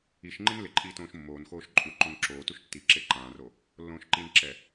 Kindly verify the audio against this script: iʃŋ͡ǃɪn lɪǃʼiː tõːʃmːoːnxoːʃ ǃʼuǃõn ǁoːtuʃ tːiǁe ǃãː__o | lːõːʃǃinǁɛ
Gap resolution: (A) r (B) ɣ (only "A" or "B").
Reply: A